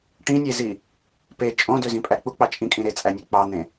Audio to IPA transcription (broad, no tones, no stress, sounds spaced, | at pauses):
ʈ ĩ nʲ e z i | p e t͡ʃʼ õ d ø z ĩ pʼ æ k͡p u k͡p ɑ t͡ʃʼ ĩ kʼ ĩ ɾ e t͡sʼ æ nʲ u k͡p ɑ n̪ ẽ